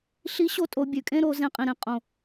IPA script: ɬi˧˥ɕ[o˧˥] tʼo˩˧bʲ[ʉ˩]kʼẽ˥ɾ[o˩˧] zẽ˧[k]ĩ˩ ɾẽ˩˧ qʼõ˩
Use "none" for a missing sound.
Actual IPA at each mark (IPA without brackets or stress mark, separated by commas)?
o˧˥, ʉ˩, o˩˧, qʼ